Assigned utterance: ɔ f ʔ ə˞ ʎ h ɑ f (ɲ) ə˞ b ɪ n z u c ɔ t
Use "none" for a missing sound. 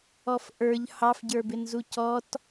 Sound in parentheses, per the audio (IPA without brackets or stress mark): ɟ